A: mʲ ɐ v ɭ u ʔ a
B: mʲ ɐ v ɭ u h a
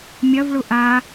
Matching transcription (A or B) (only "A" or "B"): A